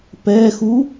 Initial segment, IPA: p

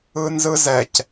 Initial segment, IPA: ɯ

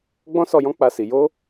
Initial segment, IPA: ɡ͡b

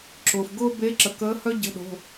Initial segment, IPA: ǁ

